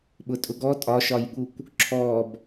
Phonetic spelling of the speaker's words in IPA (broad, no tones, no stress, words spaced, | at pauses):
ɓʊtʼʊɡɔ tʼɒʃɒjɠukʷ | ǁʰɔb